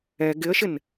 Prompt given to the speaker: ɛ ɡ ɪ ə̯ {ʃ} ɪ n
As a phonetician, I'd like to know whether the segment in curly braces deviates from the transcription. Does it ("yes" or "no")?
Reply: no